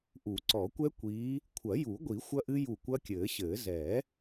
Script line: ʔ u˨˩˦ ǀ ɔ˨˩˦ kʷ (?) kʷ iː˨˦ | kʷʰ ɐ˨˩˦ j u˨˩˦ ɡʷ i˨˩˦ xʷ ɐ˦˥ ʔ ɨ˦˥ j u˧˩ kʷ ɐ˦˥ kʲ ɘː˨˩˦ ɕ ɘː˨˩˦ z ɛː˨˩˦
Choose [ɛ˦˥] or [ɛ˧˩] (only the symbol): ɛ˦˥